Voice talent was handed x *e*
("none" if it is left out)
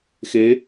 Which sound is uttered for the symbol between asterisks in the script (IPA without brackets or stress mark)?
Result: e